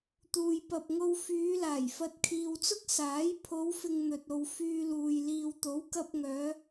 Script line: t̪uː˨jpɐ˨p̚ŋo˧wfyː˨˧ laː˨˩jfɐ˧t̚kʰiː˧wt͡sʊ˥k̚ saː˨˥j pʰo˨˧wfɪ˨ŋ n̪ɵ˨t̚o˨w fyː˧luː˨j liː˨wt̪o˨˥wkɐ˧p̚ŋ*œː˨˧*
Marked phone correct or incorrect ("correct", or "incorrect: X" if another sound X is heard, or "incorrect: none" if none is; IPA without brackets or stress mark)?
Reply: correct